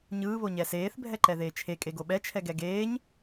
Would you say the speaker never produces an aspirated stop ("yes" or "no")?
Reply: no